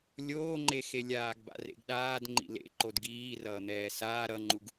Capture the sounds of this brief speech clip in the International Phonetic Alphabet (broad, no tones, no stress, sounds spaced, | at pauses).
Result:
lʲ oː ŋ͡ǃ e x e lʲ aː ɡ b a̰ r ḛ ɡ ɗ aː d ŋ͡ǃ ḭ l ḛ ǃ o d ɡ iː r ʌː n̪ ɛː s aː ɾ ʌ ŋ͡ǃ u ɡ